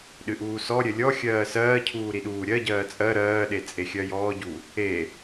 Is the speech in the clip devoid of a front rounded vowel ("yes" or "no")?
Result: yes